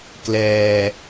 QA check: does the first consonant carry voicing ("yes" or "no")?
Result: no